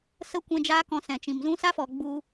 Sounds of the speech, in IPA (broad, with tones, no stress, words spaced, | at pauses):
sə˧ kʷɛ̃˧d͡ʒaː˦kɔ̃˧sɛ̃˨ t͡ʃĩ˨mzũ˦ sa˦fɔ˨ ɡ͡bu˧